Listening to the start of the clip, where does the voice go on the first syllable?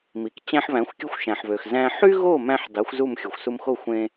low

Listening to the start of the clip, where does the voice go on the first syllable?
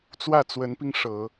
falling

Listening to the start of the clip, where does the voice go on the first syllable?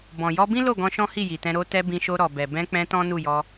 low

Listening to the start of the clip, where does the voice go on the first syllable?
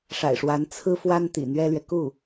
low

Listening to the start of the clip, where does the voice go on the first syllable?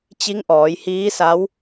rising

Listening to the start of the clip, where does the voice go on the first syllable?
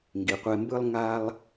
low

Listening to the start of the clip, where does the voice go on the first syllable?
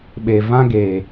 low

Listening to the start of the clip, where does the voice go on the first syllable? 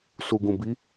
low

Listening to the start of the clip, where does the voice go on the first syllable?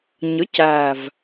rising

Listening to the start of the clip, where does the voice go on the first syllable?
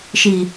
low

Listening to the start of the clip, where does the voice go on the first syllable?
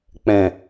low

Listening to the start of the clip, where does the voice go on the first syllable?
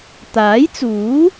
rising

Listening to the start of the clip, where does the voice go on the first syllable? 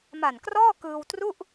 low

